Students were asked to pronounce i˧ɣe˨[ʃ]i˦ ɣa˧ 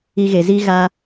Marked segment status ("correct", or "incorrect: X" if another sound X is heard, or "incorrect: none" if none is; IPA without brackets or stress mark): incorrect: z